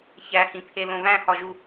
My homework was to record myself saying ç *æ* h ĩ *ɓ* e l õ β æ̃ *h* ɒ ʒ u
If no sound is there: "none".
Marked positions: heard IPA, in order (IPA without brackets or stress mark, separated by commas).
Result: æ, pʰ, h